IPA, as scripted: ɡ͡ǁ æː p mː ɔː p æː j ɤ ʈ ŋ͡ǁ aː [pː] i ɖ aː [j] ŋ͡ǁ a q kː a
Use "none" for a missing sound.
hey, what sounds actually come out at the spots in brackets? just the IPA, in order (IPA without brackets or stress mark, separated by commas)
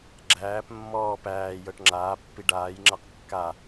pː, j